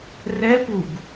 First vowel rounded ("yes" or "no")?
no